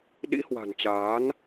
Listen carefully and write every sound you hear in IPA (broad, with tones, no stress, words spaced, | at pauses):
ɗḭ˧˥hwa̤˨˩nt͡ɕaː˨˦n